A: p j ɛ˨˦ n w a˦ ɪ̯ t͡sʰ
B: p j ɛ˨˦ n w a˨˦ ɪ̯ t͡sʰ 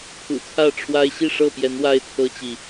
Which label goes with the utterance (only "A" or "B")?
A